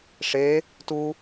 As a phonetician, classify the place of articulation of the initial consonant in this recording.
retroflex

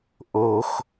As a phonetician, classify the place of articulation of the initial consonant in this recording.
glottal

